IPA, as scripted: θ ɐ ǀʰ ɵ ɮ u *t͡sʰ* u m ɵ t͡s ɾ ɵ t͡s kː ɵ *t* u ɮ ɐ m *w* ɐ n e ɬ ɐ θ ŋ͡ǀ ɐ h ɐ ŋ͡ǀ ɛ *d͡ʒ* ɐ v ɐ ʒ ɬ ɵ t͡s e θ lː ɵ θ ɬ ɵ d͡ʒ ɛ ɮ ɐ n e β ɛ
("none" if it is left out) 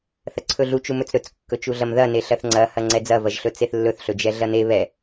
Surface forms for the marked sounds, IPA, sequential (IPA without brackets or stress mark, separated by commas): t͡ʃ, t͡ʃ, ð, d͡z